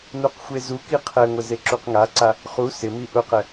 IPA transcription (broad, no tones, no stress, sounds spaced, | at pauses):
n u q xʷ e z u k i qʰ ɛ ŋʷ ɪ z e ǁ u q ŋ a ǀ a | χ u s ɪ m i ʔ ʊ q ɛ